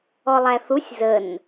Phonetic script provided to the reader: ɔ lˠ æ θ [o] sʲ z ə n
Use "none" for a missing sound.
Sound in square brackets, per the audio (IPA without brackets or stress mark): u